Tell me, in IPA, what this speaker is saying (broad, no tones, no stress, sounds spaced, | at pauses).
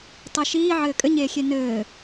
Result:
tˤ i ʃ iː ʕ ɘː kʼ ɘ ɲ eː xʲ e n ɘː